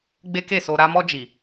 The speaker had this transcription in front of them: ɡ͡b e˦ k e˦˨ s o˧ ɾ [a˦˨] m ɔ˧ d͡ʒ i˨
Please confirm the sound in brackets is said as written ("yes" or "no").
no